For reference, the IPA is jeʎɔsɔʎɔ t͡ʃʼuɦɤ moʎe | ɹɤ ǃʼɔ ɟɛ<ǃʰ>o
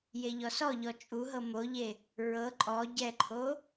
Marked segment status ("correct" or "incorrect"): correct